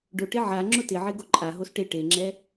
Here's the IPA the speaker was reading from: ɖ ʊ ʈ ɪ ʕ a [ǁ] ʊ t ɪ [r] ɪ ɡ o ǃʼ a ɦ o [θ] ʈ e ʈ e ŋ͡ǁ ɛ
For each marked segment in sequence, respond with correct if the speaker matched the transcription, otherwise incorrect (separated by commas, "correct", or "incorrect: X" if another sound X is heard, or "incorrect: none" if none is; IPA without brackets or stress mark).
incorrect: ŋ͡ǁ, incorrect: ʕ, incorrect: s